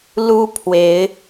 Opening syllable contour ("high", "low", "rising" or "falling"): high